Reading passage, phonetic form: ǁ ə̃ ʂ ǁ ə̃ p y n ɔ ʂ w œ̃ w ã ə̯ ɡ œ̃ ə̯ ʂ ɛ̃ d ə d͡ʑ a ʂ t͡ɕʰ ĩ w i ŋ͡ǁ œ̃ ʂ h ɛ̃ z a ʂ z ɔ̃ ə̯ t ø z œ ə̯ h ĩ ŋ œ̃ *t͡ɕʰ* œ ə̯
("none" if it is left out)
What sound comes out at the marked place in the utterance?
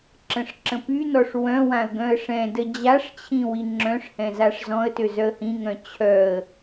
t͡ɕʰ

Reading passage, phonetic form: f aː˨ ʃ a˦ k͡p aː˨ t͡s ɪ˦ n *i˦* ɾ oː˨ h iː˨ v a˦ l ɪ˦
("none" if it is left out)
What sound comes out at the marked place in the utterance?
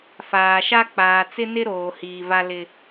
ɪ˦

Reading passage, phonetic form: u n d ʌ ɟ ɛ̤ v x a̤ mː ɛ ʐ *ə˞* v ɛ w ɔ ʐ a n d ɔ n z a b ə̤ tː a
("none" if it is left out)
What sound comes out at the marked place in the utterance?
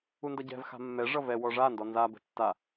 ʌ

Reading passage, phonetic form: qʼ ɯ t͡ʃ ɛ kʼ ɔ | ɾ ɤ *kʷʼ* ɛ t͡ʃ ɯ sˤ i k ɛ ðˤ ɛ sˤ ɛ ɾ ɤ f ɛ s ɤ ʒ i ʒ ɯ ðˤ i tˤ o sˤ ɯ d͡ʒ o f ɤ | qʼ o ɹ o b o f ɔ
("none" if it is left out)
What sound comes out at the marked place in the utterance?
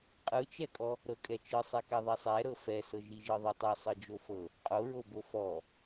kʼ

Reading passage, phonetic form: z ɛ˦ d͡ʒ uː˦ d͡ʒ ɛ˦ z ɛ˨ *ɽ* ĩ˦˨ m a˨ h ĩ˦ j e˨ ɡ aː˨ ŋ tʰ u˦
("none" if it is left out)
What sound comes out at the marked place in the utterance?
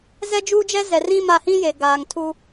r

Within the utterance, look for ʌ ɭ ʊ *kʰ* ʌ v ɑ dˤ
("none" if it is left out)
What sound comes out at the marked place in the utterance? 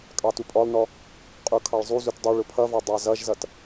pʰ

